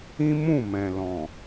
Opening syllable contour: high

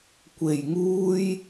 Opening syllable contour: low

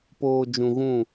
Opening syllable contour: low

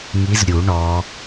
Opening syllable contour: rising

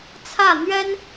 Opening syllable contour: falling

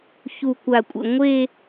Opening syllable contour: low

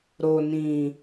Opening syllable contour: low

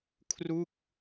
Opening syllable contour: falling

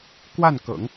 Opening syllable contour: falling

